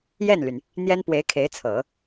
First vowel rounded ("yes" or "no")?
no